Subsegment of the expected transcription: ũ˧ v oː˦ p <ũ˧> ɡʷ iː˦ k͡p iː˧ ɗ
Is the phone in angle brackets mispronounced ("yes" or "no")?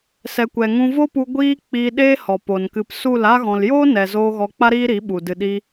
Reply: yes